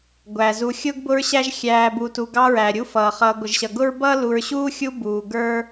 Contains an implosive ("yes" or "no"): no